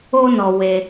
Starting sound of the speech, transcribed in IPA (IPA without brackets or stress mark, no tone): o